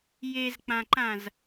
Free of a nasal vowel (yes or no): no